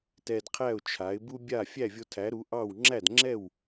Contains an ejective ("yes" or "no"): no